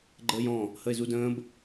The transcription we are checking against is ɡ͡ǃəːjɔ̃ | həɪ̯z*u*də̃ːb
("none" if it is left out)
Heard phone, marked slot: u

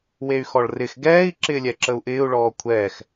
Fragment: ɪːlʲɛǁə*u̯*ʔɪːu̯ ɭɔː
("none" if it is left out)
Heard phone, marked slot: u̯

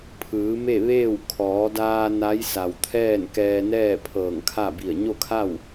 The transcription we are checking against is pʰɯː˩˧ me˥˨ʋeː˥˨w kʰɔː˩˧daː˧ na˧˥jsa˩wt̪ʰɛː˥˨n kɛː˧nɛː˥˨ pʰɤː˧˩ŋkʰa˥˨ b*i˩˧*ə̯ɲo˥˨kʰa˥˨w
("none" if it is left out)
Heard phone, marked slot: i˧˩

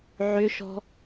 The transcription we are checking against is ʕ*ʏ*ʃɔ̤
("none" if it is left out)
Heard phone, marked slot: ʏ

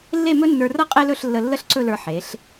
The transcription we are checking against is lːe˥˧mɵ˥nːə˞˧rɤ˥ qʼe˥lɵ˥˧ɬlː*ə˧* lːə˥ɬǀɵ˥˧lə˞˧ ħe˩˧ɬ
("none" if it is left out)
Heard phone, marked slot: ə˧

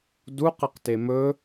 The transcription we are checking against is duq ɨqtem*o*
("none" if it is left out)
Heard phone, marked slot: ɵ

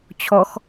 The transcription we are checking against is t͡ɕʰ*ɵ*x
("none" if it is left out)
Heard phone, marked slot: ɔ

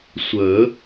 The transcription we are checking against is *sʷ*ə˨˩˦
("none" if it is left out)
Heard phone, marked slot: sʷ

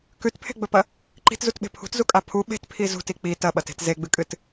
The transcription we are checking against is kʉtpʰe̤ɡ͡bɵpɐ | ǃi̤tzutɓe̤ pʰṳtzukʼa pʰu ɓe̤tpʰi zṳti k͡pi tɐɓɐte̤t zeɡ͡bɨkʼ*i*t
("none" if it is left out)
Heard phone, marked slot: ɨ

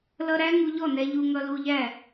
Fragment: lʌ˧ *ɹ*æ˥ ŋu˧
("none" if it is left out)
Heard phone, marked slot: ɾ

